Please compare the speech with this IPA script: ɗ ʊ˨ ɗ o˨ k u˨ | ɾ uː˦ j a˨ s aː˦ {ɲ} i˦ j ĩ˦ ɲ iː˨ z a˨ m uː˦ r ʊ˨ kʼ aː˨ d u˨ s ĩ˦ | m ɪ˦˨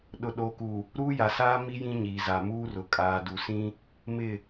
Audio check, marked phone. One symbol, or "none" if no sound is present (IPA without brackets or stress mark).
m